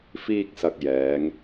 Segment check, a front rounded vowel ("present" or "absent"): absent